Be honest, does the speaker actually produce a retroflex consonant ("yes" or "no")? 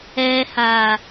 no